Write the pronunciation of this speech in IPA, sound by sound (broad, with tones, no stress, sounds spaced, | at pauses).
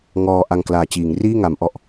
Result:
ŋ ɔː˧ ʔ a˧ ŋ k l aː˨˩ t͡ɕ iː˩˦ ŋ r iː˥˩ ŋ a˩˦ m ʔ ɔ˨˩ ʔ